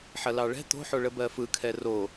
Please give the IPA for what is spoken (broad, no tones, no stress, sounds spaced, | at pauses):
ħ ɐ l ɑ ɭ ɛ̤ t̪ o̤ ħ o ɭ ə b ɜ f ɯ kʰ ɛ r o